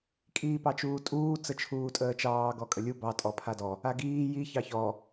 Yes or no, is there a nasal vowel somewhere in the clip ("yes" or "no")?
no